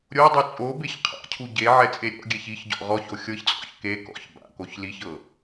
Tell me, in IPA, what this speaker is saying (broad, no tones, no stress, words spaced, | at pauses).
ɾʲo dˤut͡sʼobeç qʰa̰cʰu ɟeʕɛ t͡sʼeɾʲɔ̰ɡʲɛç içɟɔ̰ ʁɔço xʲɤçt͡sʼɔ̰ç ke kɔ̰ç ba̰koç liçɤ